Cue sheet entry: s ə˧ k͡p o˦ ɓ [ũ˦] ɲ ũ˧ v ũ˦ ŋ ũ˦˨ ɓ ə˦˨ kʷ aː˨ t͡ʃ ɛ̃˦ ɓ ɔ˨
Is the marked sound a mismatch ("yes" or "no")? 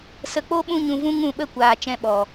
no